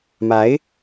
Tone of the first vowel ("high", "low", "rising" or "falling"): rising